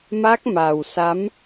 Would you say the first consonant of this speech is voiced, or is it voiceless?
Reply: voiced